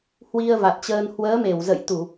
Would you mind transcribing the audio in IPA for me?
h w i˧ ə̯ v a˨˩ t̚ t͡ɕ əː˧ n h w əː˨˦ m e˧˩ w z ə̰˧˨ j t̪ u˧˩˨

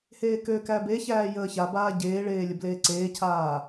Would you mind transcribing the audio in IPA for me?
h eː k ø k æ b e ç æː j əː ç a b aː ɟ eː ɭ eː lʲ ə b l eː ǀ eː cʰ aː

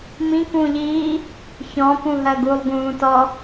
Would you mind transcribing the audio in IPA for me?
m ĩ k ũː ʎ iː | ç ɔ̃ p ũ ɦ ɜ ɡ u lˠ ɡ ũː t ɔ

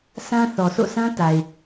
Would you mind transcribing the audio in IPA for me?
s ã˦ θ ɔ˨ s o̰˦˨ s ã˦ t a˨ ɪ̯

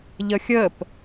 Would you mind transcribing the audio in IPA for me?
ʎ ə xʲ ə p

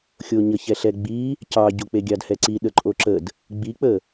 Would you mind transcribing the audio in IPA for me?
xʲ o ɲ ə ç ɛ ɬ ɛ ɡ͡b i | c ɑ ɟ o k͡p e ɡʲ ɑ d h ɛ ǀ i ɗ ə ǃʼ o ǁ ə d | ɡ͡b i k͡p ə

